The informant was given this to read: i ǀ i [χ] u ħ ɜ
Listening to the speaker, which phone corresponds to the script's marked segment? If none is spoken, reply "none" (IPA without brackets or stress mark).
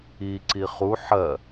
χ